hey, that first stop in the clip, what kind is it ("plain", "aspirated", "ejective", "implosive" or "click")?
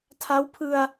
aspirated